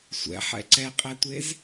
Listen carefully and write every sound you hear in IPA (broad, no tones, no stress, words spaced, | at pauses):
sʷɛ̰ħɛ̰ ǀɛqʼɛtʷez